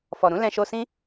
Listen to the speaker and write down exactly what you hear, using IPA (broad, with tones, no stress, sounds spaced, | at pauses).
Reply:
f ɔ˨ ɾ ũ˨˦ l ɛ̃˧ ʃ o˧ s ĩ˦